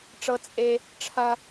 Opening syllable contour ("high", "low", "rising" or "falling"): high